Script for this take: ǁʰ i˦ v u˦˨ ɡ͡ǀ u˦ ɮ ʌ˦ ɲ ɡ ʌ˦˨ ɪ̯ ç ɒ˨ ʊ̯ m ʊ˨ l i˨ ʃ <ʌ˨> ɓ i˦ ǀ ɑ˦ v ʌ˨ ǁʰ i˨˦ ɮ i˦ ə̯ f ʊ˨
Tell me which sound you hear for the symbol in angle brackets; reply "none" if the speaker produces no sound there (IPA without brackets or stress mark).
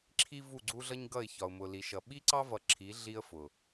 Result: ʌ˨